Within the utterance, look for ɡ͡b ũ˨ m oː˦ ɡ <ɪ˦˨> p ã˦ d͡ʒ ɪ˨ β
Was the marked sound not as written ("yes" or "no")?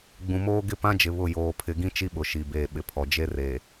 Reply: no